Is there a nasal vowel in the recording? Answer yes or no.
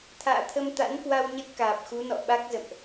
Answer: no